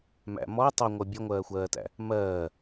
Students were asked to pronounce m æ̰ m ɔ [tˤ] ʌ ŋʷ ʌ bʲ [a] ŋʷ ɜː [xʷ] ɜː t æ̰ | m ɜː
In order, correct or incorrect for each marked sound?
correct, incorrect: ʌ, correct

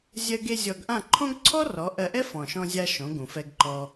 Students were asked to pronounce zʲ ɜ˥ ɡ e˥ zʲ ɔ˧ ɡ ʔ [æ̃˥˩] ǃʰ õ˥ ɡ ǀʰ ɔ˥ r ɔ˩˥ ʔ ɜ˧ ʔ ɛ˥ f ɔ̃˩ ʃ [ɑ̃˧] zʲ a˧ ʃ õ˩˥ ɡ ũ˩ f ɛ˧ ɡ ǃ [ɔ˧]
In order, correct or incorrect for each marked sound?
incorrect: ã˥˩, incorrect: ɔ̃˧, correct

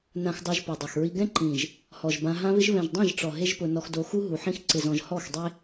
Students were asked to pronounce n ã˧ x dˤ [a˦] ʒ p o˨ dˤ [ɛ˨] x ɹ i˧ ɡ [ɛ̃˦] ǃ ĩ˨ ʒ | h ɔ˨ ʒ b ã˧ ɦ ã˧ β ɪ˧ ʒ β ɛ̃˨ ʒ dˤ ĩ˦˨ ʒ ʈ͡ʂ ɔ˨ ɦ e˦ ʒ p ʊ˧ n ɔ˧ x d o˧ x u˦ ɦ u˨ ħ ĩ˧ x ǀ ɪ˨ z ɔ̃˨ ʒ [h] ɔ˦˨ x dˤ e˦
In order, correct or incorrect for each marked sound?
incorrect: a˧, correct, correct, correct

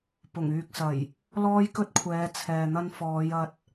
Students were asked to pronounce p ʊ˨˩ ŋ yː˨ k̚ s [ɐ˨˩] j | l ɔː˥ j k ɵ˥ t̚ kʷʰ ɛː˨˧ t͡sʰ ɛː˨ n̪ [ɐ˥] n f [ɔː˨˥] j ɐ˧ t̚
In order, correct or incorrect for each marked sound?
correct, correct, incorrect: ɔː˨˧

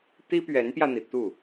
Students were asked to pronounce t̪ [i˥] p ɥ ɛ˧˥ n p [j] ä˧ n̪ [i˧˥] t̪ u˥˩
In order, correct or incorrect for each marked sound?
correct, correct, incorrect: i˩

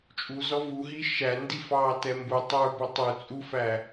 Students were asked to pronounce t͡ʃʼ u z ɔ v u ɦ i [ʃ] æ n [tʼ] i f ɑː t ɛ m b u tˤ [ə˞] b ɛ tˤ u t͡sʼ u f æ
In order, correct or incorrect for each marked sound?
correct, incorrect: d, correct

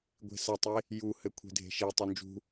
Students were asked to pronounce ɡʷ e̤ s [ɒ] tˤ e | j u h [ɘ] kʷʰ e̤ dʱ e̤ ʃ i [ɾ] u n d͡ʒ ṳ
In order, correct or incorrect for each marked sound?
incorrect: ʌ, correct, incorrect: tˤ

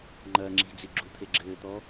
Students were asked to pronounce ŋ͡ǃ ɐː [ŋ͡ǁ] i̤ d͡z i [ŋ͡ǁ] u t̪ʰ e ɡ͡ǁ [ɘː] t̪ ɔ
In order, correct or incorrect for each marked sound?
correct, incorrect: ɡ͡ǁ, correct

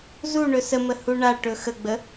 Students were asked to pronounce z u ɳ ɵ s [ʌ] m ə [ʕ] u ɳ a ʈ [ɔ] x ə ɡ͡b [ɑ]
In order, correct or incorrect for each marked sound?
incorrect: ə, incorrect: h, incorrect: ɵ, incorrect: ə

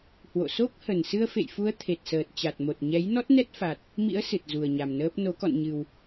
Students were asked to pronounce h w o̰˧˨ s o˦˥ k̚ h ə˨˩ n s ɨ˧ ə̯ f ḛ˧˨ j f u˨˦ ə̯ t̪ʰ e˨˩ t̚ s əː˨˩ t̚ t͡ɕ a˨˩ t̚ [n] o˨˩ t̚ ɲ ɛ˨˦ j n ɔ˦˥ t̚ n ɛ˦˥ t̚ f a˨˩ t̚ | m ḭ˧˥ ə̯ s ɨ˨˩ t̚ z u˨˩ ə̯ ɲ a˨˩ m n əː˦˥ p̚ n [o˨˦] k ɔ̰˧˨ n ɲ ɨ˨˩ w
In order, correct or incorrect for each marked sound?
incorrect: m, correct

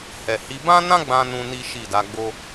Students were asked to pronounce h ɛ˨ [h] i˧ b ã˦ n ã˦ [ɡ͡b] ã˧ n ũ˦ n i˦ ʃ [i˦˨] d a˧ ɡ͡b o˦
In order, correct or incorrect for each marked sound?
correct, correct, correct

